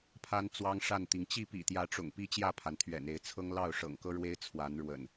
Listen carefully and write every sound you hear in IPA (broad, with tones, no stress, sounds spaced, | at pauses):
pʰ a˦ n t͡s w ɑ˦ ŋ ʂ a˥˨ n t̪ i˩ ŋ t͡ɕ i˥˨ p ḭ˨˩ t̪ j ä˨˦ ʈ͡ʂ ʊ̰˨˩ ŋ p i˦ t͡ɕ j ä˥˨ pʰ a˩ n t̪ʰ ɥ ɛ̰˨˩ n e˨˦ ɪ̯ t͡sʰ ɤ˦ ŋ l ɑ˥˨ ʊ̯ ʂ ɤ̰˨˩ ŋ k ɤ˦ ɻ w e˦ ɪ̯ t͡sʰ w a˨˦ n ɻ w ə̰˨˩ n